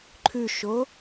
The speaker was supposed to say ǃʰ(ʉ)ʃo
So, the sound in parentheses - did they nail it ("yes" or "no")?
yes